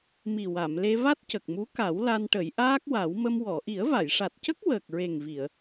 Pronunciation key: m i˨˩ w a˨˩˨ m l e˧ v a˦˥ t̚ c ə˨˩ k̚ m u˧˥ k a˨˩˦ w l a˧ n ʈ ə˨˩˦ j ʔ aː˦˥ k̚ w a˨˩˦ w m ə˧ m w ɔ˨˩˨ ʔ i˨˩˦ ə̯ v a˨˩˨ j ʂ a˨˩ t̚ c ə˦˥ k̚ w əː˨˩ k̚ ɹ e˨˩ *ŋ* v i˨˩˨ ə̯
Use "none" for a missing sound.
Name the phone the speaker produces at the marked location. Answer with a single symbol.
ŋ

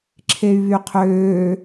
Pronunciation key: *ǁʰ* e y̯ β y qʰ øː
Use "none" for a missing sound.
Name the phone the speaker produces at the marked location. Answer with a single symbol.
ǁʰ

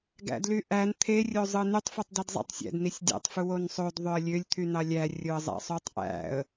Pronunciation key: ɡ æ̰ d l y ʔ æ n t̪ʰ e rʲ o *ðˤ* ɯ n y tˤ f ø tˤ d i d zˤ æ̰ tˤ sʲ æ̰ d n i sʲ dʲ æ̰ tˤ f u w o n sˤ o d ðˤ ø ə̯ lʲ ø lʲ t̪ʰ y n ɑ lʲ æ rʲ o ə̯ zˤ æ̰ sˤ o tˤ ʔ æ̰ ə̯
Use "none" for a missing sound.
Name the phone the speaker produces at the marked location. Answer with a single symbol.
zˤ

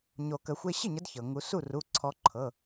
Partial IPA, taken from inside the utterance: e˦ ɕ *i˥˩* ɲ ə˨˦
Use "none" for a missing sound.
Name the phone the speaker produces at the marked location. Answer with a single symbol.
i˥˩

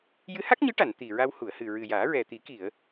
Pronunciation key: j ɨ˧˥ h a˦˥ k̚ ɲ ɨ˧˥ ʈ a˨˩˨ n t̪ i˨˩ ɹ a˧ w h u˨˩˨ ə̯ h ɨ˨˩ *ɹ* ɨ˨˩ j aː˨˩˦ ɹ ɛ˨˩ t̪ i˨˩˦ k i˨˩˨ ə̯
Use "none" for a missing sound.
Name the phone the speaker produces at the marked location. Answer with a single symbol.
ɹ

